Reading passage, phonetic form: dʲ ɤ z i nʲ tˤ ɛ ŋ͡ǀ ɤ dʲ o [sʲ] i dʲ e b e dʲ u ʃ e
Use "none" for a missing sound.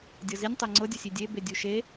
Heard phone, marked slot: sʲ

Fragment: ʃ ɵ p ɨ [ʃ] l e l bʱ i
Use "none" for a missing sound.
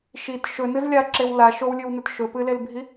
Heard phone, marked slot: none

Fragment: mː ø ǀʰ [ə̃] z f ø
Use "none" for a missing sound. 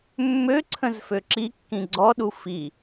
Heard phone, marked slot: ə̃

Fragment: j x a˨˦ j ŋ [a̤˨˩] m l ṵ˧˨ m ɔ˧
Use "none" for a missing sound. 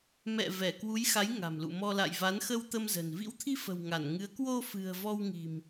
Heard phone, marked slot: a̤˨˩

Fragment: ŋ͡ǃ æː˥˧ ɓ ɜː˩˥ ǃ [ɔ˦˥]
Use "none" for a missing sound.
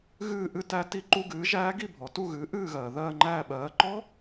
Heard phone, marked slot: ɔ˦˥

